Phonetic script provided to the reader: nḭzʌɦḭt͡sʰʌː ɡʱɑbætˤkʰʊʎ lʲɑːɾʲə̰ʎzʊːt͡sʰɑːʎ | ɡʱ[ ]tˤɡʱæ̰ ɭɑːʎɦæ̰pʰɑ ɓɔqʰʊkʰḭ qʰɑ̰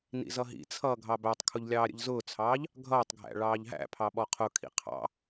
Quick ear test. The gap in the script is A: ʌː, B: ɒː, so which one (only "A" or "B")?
A